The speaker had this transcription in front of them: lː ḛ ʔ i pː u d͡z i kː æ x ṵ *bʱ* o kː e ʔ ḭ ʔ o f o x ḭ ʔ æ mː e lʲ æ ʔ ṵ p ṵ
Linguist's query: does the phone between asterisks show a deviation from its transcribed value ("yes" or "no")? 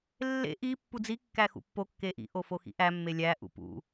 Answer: yes